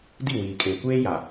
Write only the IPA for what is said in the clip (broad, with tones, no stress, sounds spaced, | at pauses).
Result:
d i˦˨ w iː˨ kʼ eː˨ kʷ eː˦ j a˨